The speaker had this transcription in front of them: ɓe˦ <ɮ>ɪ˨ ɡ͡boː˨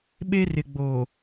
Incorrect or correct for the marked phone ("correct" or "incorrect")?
incorrect